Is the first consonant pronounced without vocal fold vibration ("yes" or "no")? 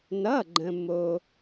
no